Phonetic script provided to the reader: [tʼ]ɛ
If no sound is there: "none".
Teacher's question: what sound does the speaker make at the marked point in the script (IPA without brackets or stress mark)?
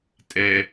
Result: tʼ